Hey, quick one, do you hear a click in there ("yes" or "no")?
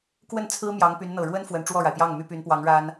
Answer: no